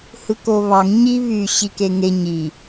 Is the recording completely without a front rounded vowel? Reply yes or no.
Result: no